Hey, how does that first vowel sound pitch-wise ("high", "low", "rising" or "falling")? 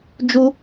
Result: high